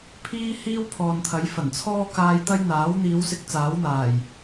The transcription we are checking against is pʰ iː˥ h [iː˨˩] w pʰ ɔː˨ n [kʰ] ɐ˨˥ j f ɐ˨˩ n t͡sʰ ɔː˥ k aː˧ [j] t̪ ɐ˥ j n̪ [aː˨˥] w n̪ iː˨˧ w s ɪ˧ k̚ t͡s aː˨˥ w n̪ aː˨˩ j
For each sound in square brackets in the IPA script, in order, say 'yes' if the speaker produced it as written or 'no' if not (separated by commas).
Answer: no, no, yes, yes